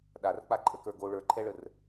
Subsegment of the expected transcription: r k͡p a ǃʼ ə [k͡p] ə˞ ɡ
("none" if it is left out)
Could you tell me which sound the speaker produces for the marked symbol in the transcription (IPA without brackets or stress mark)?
k